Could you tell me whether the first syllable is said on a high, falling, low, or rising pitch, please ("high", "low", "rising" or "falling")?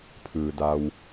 low